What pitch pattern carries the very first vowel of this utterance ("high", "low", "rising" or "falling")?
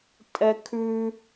high